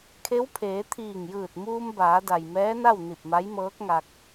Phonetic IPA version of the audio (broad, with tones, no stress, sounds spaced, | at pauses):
kʰ e˧˥ w pʰ eː˩˧ t̪ʰ iː˧˩ ŋ j ɯː˧˩ t̚ m uː˧ m b aː˩˧ d a˩ j m ɛː˧˥ n a˥˨ w n i˧˩ p̚ m a˧˥ j m ɤː˧˥ k̚ ŋ a˧ k̚